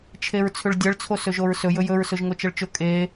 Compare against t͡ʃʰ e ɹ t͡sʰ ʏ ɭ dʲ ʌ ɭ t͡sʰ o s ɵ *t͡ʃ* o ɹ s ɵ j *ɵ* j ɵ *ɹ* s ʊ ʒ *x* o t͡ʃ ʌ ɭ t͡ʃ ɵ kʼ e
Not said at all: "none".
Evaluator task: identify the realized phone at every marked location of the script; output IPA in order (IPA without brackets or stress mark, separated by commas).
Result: ʒ, ɵ, ɹ, ŋ